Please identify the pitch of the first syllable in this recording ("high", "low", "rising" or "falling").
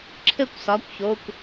falling